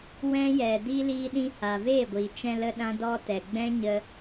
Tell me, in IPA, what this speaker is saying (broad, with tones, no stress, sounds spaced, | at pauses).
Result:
w ɛ̃˦ j ɛ˨ d iː˧ l iː˧ ɗ ĩ˧ h a˨ v eː˦˨ ɡʷ iː˨ t͡ʃ ɛ̃˧ l ə˦ ɗ ã˦ d ɔ˧ t ɛ˨ ɡ͡b ɛ̃˦ ɲ ə˧